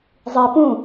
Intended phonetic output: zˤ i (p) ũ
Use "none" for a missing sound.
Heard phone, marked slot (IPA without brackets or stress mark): p